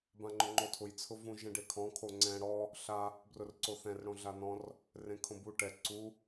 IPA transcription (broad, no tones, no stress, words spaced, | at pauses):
bãŋ͡ǃʊŋ͡ǃotʰʊj t͡sʰʊvũ ʒɛ̃ɖekʰɔ̃ kʰoŋ͡ǀɛ̃ ɽɔ | ɬa | brʊrǀoθɛ̃r ɽõɮanɔ̃r | rẽkʰõbu ʈɛ ǀu